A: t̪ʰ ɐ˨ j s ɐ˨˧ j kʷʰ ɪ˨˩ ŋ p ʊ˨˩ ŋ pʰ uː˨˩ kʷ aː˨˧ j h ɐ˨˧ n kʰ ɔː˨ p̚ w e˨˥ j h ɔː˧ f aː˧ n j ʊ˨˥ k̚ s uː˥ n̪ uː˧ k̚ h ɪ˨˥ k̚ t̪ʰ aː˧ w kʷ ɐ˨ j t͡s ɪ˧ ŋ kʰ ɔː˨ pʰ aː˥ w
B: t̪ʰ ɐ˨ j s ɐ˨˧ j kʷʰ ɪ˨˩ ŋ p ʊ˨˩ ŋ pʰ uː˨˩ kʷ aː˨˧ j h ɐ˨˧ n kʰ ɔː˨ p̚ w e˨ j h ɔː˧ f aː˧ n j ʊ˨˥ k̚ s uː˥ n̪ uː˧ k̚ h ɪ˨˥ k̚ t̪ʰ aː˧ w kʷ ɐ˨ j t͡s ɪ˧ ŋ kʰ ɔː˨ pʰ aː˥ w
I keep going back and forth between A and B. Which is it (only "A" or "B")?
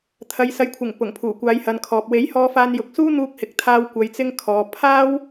A